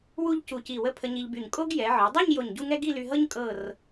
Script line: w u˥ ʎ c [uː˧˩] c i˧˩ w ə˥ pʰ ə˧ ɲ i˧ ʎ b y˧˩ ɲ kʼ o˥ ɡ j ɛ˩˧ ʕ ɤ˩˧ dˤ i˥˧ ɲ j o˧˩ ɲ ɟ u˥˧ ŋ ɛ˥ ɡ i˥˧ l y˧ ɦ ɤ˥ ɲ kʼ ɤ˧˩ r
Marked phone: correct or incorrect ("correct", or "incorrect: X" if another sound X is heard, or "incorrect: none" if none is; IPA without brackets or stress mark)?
incorrect: u˧˩